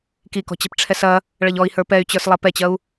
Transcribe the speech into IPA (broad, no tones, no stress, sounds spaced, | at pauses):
k i k ɔ̤ t͡ɕ ɛ̤ p ʈ͡ʂʰ ɛ s ɐ | ɭ ɐ ʎ ɔ i̯ h ə˞ p ɛ y̯ t͡ɕ ə˞ s lˠ ɐ p ɛ t͡ɕ ɐ u̯